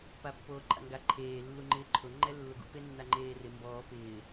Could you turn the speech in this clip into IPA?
papːoːǃʼa̰ŋɡa ǃʰeː lːuŋ͡ǃɪːǃʰʊ ŋ͡ǃɛlːʊɡṵ penːaŋ͡ǃeːrɪ mbɔː pɪː

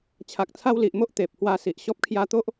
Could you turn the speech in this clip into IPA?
t͡ɕʰa˨k̚t͡sʰa˧wli˨ʔ mo˦ʔ t̪e˨p̚hwa˧ si˨ʔɕɔ˦p̚kʰja˦ t̪o˦ʔ

